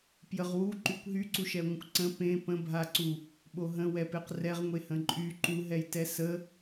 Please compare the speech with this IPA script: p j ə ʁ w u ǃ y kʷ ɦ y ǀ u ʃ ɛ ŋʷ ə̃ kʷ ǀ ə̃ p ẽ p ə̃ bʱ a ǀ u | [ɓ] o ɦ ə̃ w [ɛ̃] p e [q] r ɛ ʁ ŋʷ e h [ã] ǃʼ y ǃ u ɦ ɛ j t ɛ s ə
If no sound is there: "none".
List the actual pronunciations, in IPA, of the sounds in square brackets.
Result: ɓ, ɛ, q, ə̃

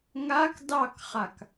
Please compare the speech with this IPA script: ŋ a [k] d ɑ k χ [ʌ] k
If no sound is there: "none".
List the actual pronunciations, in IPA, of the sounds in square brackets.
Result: k, a

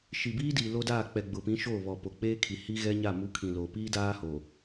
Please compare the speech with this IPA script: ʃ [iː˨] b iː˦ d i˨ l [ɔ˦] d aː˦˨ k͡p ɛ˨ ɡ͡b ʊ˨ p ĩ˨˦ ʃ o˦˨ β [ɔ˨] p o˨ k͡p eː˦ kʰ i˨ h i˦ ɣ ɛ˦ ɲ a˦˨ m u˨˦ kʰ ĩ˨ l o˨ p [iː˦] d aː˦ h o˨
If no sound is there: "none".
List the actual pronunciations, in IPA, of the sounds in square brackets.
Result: i˨, o˦, ɔ˨, iː˦

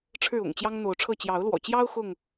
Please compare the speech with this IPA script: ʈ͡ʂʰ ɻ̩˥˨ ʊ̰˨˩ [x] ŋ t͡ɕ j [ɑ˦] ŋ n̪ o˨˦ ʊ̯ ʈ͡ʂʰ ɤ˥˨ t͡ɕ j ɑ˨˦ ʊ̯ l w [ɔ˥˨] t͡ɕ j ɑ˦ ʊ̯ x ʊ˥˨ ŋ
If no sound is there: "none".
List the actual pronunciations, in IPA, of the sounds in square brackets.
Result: none, ɑ˦, ɔ̰˨˩

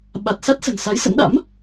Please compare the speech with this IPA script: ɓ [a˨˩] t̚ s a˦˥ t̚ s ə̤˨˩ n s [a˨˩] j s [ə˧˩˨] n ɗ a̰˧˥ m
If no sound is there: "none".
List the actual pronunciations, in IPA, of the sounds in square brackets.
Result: a˨˩, a˨˦, ə̰˧˥

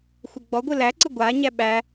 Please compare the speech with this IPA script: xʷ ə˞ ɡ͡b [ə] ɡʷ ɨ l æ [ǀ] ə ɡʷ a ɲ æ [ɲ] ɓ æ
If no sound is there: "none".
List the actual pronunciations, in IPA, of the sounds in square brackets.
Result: ɔ, ǀ, none

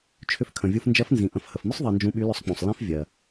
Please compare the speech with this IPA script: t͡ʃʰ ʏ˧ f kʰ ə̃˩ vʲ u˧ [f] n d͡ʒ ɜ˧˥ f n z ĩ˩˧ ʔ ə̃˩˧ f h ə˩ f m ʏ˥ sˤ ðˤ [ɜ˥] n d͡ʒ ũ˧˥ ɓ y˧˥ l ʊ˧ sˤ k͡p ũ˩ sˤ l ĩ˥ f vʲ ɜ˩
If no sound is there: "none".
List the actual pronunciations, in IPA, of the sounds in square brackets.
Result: f, ɜ˧

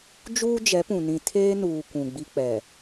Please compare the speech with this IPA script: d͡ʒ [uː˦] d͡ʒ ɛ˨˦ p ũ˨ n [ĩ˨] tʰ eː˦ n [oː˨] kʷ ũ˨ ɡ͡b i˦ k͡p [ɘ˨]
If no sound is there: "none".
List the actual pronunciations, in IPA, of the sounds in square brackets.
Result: uː˦, ĩ˨, uː˨, ɛ˨

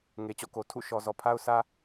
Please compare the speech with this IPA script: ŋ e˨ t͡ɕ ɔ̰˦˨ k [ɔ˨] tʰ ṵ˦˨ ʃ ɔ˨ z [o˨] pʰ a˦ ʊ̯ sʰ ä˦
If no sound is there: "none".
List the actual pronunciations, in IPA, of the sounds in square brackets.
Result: o˨, ɔ˨

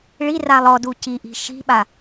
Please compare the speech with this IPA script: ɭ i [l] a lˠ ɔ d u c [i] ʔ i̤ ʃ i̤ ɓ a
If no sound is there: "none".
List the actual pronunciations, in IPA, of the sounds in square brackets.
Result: r, i

